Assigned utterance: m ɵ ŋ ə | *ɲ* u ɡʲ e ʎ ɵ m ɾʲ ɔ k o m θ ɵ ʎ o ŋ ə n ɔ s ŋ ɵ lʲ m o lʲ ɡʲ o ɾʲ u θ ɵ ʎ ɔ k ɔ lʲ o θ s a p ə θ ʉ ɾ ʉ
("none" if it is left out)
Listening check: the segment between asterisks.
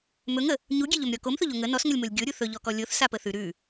ɲ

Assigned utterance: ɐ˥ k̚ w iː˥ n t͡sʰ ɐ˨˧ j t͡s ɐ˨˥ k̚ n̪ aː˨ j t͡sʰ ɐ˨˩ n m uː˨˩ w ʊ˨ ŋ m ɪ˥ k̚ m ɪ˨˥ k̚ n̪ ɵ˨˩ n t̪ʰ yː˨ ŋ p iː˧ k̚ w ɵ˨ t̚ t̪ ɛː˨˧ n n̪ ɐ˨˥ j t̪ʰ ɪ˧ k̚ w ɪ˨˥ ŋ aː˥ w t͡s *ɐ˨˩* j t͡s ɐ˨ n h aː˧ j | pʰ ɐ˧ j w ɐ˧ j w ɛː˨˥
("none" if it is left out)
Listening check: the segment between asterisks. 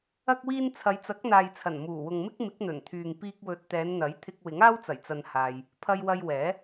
ɐ˨˩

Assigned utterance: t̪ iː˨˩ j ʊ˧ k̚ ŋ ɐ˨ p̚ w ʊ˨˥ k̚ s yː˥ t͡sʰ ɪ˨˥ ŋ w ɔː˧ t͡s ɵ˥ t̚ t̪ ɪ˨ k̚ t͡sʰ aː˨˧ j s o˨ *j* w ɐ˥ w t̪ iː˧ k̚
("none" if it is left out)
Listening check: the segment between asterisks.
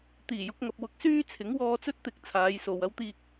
none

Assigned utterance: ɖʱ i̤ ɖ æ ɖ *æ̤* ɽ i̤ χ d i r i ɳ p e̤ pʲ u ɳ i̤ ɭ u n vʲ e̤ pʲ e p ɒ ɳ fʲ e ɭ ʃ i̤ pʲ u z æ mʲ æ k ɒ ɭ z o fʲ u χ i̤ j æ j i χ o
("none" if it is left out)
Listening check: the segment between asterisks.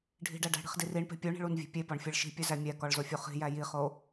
æ̤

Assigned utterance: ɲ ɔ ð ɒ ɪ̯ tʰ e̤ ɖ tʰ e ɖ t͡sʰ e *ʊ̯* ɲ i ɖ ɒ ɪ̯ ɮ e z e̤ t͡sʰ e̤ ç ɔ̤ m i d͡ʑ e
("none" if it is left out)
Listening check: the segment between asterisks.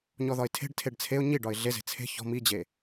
ʊ̯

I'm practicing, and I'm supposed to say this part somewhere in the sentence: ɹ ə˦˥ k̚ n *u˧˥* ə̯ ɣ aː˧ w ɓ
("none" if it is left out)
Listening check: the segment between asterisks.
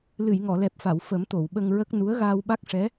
u˧˥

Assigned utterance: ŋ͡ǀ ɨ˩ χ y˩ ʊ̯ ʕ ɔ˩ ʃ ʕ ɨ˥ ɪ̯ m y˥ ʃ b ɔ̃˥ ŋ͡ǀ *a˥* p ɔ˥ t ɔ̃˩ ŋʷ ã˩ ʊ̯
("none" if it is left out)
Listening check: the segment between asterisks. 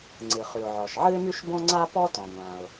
a˥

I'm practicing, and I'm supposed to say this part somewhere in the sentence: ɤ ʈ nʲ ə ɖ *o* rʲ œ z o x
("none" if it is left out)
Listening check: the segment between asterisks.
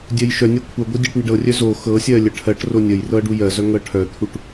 ɤ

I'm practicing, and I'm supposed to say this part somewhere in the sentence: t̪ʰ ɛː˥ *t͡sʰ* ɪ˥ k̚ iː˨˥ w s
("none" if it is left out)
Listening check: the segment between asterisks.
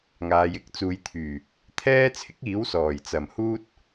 t͡sʰ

